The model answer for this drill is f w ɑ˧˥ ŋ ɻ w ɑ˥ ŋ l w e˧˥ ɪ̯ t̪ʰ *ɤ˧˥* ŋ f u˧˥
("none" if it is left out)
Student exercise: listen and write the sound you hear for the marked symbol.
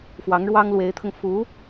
ɤ˧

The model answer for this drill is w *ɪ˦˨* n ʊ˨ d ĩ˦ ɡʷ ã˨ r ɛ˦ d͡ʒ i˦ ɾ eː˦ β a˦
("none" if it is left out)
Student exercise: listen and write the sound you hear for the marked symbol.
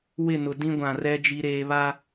ɪ˦˨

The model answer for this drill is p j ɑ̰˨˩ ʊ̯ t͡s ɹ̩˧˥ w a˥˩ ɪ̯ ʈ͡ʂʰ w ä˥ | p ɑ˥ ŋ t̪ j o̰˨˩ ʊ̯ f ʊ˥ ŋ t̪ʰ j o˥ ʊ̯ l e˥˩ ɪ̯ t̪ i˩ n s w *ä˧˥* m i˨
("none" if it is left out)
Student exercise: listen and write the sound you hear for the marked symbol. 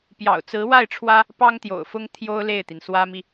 ä˥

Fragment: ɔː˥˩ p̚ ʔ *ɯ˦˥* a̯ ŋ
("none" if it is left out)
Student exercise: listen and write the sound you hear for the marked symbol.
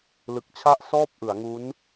ɯ˩˦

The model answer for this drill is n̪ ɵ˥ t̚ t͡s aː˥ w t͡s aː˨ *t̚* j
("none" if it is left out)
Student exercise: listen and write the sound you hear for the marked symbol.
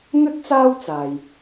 none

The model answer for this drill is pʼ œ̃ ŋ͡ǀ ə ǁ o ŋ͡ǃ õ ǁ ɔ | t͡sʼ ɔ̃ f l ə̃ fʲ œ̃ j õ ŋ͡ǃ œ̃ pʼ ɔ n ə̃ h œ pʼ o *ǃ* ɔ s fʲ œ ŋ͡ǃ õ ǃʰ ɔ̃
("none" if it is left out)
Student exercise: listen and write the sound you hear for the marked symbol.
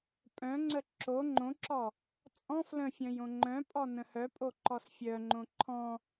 ǃ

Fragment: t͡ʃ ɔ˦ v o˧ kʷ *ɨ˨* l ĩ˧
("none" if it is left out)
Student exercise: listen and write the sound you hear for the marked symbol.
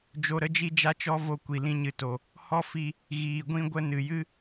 i˨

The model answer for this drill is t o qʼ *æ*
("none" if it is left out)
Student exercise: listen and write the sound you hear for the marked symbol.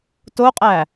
æ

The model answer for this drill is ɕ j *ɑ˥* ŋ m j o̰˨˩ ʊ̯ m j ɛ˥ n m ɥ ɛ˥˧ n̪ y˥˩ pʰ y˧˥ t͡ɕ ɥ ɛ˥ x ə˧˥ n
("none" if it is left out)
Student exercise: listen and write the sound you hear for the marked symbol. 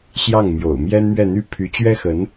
ɑ˥˩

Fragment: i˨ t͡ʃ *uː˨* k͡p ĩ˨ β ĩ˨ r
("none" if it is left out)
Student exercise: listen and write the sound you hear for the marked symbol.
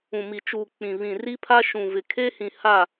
uː˨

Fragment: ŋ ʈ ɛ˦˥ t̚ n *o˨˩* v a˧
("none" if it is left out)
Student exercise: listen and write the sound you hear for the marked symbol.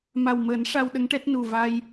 u˨˩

